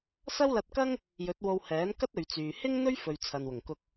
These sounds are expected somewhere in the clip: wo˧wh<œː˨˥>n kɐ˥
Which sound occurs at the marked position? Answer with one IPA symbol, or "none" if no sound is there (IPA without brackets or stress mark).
ɛː˨˥